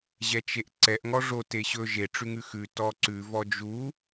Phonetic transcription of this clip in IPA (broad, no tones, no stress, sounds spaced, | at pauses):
ʑ ɛ t͡ʃ e ʔ ǀ ɛ ʔ ŋ ɔ ʐ o t e ɕ ɵ ʒ e ʈ͡ʂ ʉ ŋ ʉ x ʉ t ɔ ǀ ʉ v ɔ d͡ʒ u